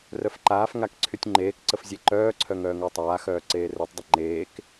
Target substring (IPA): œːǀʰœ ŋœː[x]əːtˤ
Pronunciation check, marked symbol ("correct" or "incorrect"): incorrect